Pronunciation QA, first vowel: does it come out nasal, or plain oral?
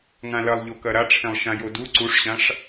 nasal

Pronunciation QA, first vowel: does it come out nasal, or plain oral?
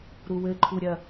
oral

